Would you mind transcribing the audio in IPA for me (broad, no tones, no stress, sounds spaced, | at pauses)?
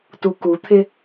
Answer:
t u k u t̪ʰ ɪ